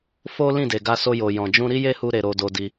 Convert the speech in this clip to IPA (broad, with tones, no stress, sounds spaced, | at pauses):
f o˦ l ĩ˦˨ d e˨ ɡ a˧ s o˧ j o˨ j ɔ̃˨ d͡ʒ ũ˧ ɾ i˦ j e˦ h u˧ ɾ e˨ ɾ o˧ d o˧ d i˧